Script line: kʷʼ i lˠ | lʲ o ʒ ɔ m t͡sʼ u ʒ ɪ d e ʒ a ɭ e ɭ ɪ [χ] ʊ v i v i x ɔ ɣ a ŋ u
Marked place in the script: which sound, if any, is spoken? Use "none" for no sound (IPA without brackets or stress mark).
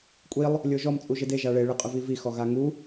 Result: qʼ